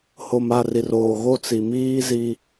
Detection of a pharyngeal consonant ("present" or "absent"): absent